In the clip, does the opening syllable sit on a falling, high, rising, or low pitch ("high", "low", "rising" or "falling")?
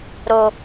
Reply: low